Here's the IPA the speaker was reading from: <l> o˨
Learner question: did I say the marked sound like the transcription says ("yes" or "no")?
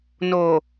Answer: no